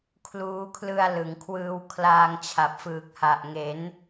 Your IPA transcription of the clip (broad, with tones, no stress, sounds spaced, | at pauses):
kʰ l uː˦˥ kʰ l ɯ˧ a̯ l ɯ˩˦ ŋ kʰ w ɯː˧ w kʰ l aː˧ ŋ t͡ɕʰ a˨˩ p̚ f ɯː˨˩ k̚ h a˨˩ ʔ ŋ e˩˦ n